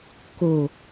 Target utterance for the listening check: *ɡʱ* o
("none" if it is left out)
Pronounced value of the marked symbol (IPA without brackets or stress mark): k